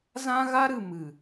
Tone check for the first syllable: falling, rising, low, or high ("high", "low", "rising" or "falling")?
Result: high